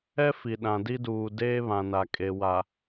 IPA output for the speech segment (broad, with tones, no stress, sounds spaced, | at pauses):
ɛ˦ f i˨ ɗ ã˨ d i˦ d uː˨ d eː˦ β ã˨ n a˨ kʼ e˨ w a˨